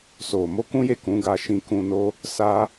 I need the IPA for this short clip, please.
s o˨ m o˧ k ũ˦ j e˦˨ k ũ˨˦ ɡ a˧ ʃ ĩ˧ k ũ˧ n o˦ | s a˦

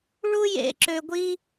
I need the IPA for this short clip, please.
ɭ u˥ j ḛ˦ ǁ ø˦ ɡʷ i˥

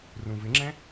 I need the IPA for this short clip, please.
r ũ v ɪ ŋ͡ǁ ɛ̃

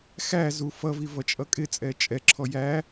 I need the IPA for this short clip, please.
x æ z u f ʌ v i v ʌ t͡ʃʼ ʌ kʼ ɪ t͡sʼ ɛ t͡ʃʼ ɛ ǁʰ ɔ j æ

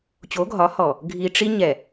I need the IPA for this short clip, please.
t͡ɕ o˨˦ ɡʱ ɒ˨˦ h ɔ˨ | ɡʱ i˨ ʈ͡ʂ i˦ ɲ ɛ˨

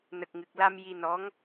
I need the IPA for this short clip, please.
n ə˨˩ k̚ ŋ ɨ˨˩ k̚ l a˧ m j i˧ n ɔ˧˥ ŋ

